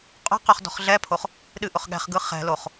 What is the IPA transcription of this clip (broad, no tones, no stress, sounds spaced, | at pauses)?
qʼ o̤ q œ χ d ɔ̤ χ ɮ ɛ pʰ o χ | ɗ ɨ ʔ ʊ χ ɠ ɛ̤ χ ɡ ɯ χ ɛ̤ l o χ